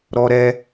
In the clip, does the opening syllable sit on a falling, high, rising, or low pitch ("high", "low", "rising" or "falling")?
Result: high